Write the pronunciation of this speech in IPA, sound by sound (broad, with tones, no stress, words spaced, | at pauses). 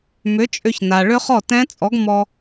mʏ˨˥t͡ʃʼʏ˧ç na˩ɭʏ˦˥χɔ˥˩ tɛ̃˦˥t͡sʼɔ˨˥ɡ mɔ˧